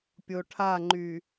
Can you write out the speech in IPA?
pʲ o ʈʰ a ŋ͡ǃ y

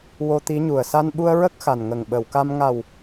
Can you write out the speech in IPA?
w o˧ t̪ i˧˥ ɲ u˨˩ ə̯ s a˧ n ɓ u˧ ə̯ ɹ ə˦˥ k̚ x a˨˩ n ŋ ə˨˩ ŋ ɓ ə˨˩˨ w k a˧ m ŋ a˨˩ w

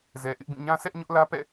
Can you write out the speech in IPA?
z ɛ˨ ʔ ɪ˦ ʔ b ĩ˦˨ ɲ ã˦ sʰ ɛ˦ ʔ ɲ ʊ˦ ʔ l ä˦ p ɛ̰˦˨

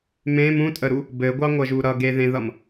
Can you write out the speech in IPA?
m ẽ m ũ tʼ ə ɾ u | b ɘ ɡʷ ɑ ŋʷ ʌ ʒ u ɾ ʌ ɡ e ð ẽ ð ʌ m

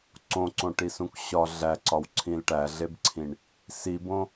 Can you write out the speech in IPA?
ǀ õ ǀ õ ʈ i s ũ k ɕ ɒ ɮ æ ǀ ɒ w ǀʰ ĩ l ʈ æ ɮ e b ǀʰ ĩ ɳ | s i b õ

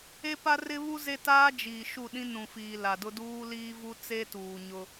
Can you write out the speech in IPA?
e˦ p a˦ r ɪ˦ β u˦ z e˦ t aː˦ d͡ʒ iː˨ ʃ u˦˨ ɗ ĩ˦ n ũ˨ f iː˨ l a˨ d ʊ˦ d uː˦ l iː˦ v u˦ t͡s e˦ t uː˨ ɲ ʊ˦

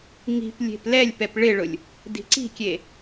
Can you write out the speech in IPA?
ŋ i̤ p lʲ e̤ p l ɛ lʲ p ɛ p ɭ ɪ ɭ ʊ lʲ | d i̤ ǀ i̤ kʲ e

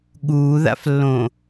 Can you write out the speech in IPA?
ɠ uː ð a̰ f lː õ

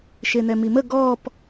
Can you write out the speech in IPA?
ʃ e n̪ ɛ m i m ə ɡ ɔ p

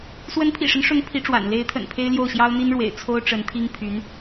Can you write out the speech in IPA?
s w ə˧˥ n pʰ ḭ˨˩ ʂ ə˦ n ʂ ʊ˧˥ ŋ pʰ i˧˥ ʈ͡ʂ w a̰˨˩ n l e˧˥ ɪ̯ t̪ʰ ə̰˨˩ n pʰ e˥ ɪ̯ l j o˥˩ ʊ̯ ɕ j ɑ˥ ʊ̯ n̪ i˥ n ɻ w ḛ˨˩ ɪ̯ t͡sʰ o˥ ʊ̯ ʈ͡ʂ ə˧˥ n t̪ʰ i˥ ŋ pʰ y˧˥ n

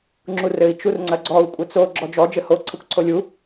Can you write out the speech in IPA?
ŋ͡ǁ u r ɘ i̯ t͡ʃ u r ŋ͡ǀ ɐ ɡ͡ǀ ɔ u̯ kʷʼ ɘ t͡s o ɡ͡ǁ ɔ d͡ʒ ɔ d͡ʒ ɘ h o ǀʰ ɘ kʷ ǀʰ o lʲ u

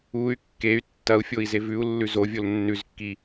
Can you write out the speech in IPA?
u y̯ kː e y̯ tː ɐ u̯ fʲ o i̯ z e v ʉ u̯ lː ʉ z o vʲ o l nː ʉ z kː i

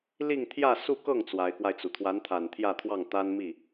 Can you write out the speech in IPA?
l i˥˧ ŋ t̪ʰ j ä˥˧ s u˥˧ k ɤ˥˩ ŋ t͡s w a˧˥ ɪ̯ k w a˧ ɪ̯ t͡s u˩ t̪ʰ w a˧˥ n t̪ʰ a˨˩ n t̪ʰ j ä˥˧ t̪ʰ w ɑ˥˩ ŋ t̪ a˥ n m i˥˩

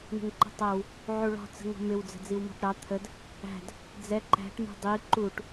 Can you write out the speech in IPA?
ɳ ə̤ ŋ ǃ ə̤ tˤ æ w | ʕ u ɭ ɔ̤ t͡s ə̤ ŋ ɔ̤ m ɪ w d͡z ə̤ d͡z i w m ɔ̤ ʈ ɾ ɑ t̪ʰ ə d | æ̤ d | d͡z ɛ ǃ æ̤ ʈ m ṳ dˤ i ǃ u ʈ

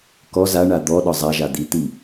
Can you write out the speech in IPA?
k ɔ z a ɳ a d̪ ɔ ɗ ɒ zˤ a ʒ a d̪ i t̪ i

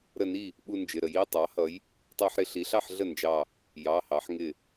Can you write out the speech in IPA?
ɾ ə˧˩ n i˥˩ | ɓ u˦ n d͡ʒ ɪ˩˧˩ ɾ ə˩˧ j i˩˧˩ tˤ ɑ˩˥ h ʌ˩˥ j | tˤ ɑ˦ ħ ɾ ɪ˩˧ ɬ i˩˧ ɬ ɑ˥˩ ħ ɮ ə˥˩ n d͡ʒ ɑ˧˩ | j ɑ˩˧˩ h ɑ˩˧ ħ ŋ ɪ˧˩

